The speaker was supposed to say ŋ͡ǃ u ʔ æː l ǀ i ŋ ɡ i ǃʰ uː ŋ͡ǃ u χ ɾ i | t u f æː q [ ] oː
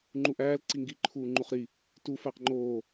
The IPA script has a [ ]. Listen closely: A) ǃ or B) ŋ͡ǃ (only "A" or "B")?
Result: B